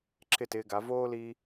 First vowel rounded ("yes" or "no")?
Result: no